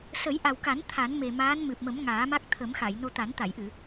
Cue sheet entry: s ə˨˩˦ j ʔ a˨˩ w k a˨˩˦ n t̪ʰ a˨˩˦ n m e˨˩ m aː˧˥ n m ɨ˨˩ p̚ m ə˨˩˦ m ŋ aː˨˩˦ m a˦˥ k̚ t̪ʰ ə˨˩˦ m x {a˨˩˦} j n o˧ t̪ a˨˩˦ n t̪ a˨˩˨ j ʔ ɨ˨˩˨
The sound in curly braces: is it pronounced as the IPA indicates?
no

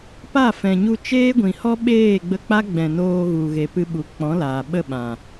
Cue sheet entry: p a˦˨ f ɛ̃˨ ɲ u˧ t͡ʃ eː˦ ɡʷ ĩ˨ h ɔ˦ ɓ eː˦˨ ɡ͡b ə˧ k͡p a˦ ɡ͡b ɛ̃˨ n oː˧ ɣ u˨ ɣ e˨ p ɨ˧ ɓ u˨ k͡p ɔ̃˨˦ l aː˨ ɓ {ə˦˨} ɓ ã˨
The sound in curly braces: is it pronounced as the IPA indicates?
yes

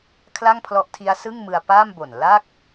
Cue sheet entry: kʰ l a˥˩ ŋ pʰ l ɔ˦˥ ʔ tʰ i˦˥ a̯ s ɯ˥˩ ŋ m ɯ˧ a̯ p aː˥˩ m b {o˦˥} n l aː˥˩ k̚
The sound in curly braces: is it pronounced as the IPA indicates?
no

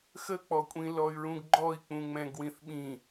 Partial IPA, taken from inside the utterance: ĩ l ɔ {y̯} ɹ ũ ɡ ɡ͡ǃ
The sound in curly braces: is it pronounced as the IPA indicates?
yes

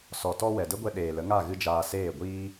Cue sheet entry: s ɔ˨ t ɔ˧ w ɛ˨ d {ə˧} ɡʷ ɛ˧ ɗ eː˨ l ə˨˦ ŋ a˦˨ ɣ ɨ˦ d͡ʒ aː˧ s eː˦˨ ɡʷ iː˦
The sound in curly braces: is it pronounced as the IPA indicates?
no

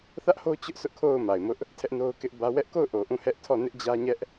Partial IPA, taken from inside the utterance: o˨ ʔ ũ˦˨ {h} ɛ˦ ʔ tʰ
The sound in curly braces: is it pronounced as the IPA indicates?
yes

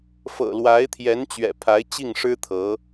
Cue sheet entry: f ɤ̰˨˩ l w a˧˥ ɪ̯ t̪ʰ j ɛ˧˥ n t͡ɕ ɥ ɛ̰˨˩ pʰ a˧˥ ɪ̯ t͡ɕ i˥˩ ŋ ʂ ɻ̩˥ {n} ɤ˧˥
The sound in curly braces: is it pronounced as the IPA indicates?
no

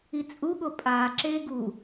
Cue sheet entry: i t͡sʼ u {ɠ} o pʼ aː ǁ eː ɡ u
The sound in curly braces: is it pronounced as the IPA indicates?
yes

